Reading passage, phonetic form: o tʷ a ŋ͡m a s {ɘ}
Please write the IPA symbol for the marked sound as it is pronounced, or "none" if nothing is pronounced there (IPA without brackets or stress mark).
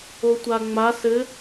ɘ